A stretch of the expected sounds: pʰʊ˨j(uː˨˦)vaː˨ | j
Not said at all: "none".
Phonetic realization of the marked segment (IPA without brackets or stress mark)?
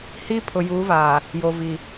uː˨˦